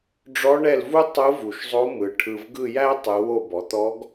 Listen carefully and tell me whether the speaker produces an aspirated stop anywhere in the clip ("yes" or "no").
yes